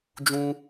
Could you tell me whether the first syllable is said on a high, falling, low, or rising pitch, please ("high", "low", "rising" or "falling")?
high